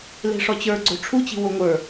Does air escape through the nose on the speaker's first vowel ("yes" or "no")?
no